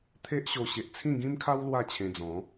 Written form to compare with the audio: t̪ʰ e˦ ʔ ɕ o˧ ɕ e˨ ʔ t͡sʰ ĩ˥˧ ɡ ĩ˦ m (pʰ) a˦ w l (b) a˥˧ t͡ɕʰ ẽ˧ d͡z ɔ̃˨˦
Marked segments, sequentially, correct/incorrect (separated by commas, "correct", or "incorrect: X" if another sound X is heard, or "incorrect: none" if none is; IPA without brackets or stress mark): incorrect: kʰ, incorrect: w